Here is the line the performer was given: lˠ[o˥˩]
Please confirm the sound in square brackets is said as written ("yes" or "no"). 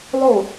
yes